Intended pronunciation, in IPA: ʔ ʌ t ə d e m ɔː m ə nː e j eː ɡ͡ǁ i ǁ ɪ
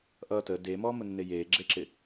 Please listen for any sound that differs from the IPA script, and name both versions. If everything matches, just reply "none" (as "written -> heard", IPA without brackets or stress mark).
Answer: i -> e